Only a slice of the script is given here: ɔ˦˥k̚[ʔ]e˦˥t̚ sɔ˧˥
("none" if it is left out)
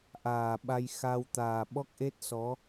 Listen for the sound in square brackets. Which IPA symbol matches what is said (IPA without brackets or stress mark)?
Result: ʔ